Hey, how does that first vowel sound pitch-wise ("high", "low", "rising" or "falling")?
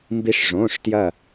rising